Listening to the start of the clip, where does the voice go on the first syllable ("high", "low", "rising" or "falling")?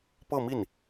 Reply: falling